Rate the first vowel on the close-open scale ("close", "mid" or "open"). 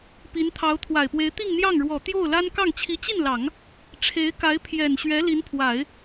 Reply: close